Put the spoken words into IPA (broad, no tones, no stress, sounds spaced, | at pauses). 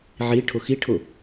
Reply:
ʕ i ʈʰ ʊ x i ʈʰ ʊ